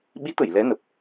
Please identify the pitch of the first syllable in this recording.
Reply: rising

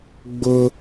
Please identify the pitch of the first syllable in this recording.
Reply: high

